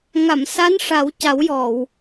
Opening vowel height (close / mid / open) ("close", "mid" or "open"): open